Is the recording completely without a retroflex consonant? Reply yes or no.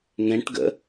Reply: no